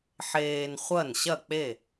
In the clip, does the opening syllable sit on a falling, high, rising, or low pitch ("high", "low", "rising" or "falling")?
low